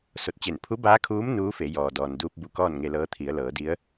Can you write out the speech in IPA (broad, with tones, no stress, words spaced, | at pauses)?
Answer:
so˧˩t̚ t͡ɕe˧˩n pʰu˧˥baː˧˥kʰuː˧˥m nuː˧˥fe˩˧ jɔː˩dɔː˩n duː˧p̚bu˧˩ kɔː˥˨nŋe˧lɤː˧˥t̪ʰi˩˧ə̯ lɤː˩˧di˧˥ə̯